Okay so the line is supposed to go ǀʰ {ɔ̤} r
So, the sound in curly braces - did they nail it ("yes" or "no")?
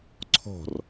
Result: yes